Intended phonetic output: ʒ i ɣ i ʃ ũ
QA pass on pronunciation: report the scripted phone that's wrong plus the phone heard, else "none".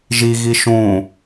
none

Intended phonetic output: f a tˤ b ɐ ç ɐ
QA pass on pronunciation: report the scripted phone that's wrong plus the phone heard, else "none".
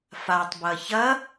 none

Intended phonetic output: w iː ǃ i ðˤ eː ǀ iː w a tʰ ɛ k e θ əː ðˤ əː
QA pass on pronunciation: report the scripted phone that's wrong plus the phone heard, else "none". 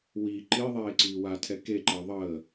θ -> ǃ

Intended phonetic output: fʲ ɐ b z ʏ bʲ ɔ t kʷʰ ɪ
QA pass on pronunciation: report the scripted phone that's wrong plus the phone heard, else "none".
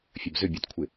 none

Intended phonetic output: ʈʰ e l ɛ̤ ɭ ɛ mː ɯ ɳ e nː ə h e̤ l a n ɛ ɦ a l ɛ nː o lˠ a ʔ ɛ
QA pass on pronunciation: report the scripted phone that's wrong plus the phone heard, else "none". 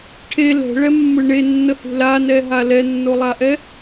none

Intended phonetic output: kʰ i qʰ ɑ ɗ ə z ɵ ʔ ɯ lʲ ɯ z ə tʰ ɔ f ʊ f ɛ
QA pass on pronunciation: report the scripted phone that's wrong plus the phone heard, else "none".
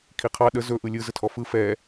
ʊ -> ɯ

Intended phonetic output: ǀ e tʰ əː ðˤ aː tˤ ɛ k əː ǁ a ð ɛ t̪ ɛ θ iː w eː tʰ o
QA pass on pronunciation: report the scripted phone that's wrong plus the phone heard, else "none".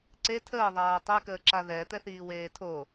none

